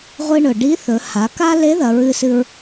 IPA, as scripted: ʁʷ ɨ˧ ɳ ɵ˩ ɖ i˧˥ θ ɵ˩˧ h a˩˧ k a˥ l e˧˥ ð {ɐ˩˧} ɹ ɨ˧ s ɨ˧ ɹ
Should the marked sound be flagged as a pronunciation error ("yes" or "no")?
no